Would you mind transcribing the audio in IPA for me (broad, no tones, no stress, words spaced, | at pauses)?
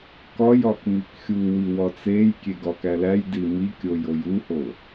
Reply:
kɒj ɒkmikxʲu wiwɒt͡sej kʲeɡɒkælæj dimikʲoj ojuho